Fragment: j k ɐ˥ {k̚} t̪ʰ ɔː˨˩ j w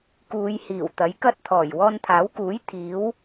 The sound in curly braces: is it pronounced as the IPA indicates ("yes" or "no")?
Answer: no